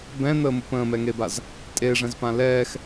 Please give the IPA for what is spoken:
bɛ̃n̪əːmup ə̃ːmɛŋebaz | tʼeʐɛ̃zpã lɛːx

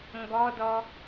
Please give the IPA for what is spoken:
ŋɡɔdɔ

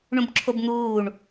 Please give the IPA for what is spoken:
ɳũbǁʰobn̪uːɳ

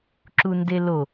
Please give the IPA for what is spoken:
ǁundelo

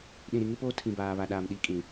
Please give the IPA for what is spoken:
ɗĩ˨ɾi˨ŋɪ˦poː˦ tʰĩ˨baː˨βa˨ɗaː˨m ɗi˨˦kʼĩ˨

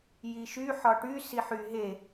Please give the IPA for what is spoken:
jiʃy ħɒʈy siħy ɦe

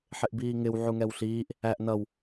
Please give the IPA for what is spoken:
ħɪʔbiːŋɪw ʕuŋɛwɬiːʔ | æʔ nʌw

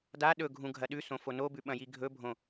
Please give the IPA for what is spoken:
da ɗɵɡʱũ ɡʱɐɗʉsõ fonobʉ ɓɐ̃jiɡʱɵbʱõ

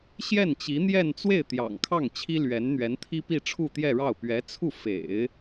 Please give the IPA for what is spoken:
ɕjɛ˥˩n t͡ɕi˧˥n̪jɛ˥˧n t͡swe˥˩ɪ̯ t̪jɑ̰˨˩ŋkʰɑ˥˩ŋ t͡ɕʰi˥lɥɛ˧˥nn̪ɥɛ˧˥n t̪ʰi˥pi˥˧ ʈ͡ʂʰu˥˧t̪jɛ˥˧ɻɑ˥˩ʊ̯ pɥɛ˧˥t͡sʰu˥˩ fḛ˨˩˦ɪ̯

